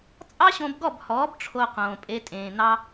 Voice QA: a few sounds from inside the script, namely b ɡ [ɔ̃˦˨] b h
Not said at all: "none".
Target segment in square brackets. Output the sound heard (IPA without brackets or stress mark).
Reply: ɔ˦˨